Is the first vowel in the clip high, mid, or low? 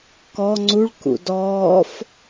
mid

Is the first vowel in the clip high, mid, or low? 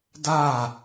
low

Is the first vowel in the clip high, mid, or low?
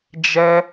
mid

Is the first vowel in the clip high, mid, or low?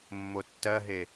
mid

